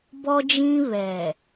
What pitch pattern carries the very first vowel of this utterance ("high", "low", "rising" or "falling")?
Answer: high